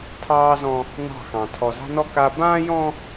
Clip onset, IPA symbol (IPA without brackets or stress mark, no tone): tʰ